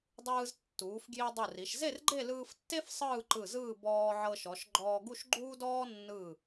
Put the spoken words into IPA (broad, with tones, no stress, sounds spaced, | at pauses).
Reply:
dˤ ɯː˧ z tː uː˩˧ f ɡ j i˧ dˤ u˧˩ r i˩˧ ʃ z e˥˧ r ɡ͡ǃ e˥˧ l ɯː˧ f tː e˥ f sˤ ɯː˥˧ ǃ ɯ˧˩ z ɯː˥˧ b ɔː˧ ʕ ɤ˧ ʃ ɔ˩˧ ʃ ɡ͡ǃ ɔː˧ ɡ u˥˧ ʃ ɡ͡ǃ uː˥ d ɔː˥ nː ɯ˧˩